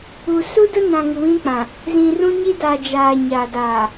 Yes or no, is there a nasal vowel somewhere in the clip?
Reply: yes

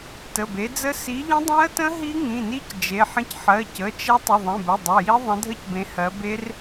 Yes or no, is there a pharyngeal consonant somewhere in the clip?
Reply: yes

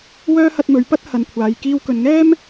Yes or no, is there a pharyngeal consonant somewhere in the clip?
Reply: no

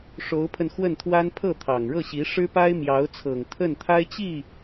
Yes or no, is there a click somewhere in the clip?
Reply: no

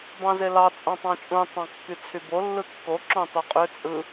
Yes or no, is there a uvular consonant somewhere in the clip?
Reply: yes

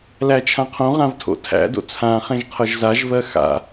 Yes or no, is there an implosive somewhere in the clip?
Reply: no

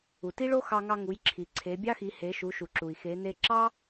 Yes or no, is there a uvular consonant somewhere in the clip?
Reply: no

